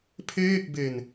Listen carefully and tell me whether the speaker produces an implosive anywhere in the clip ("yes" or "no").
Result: no